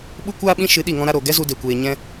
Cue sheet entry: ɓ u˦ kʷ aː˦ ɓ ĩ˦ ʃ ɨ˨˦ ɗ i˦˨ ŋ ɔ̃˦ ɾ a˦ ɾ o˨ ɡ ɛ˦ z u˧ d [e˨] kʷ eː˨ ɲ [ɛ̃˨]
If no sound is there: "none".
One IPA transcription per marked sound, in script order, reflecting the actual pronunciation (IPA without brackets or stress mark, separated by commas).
e˨, ɛ̃˦